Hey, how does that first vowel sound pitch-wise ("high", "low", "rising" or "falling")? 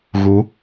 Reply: rising